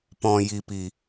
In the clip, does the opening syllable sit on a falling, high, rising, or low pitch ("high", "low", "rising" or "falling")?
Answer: low